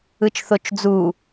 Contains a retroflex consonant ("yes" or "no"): no